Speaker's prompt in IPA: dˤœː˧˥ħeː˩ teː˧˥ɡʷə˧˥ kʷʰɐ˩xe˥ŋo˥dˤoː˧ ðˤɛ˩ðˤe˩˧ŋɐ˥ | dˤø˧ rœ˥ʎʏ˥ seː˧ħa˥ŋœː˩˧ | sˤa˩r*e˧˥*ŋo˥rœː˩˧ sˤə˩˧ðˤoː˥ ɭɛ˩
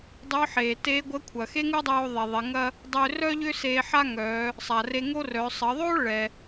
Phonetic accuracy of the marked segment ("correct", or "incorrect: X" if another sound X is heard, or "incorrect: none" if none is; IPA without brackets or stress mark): incorrect: e˧